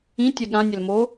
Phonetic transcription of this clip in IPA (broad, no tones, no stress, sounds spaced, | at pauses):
ĩ tʲ ɛ ɠ ã nʲ ɛ l m o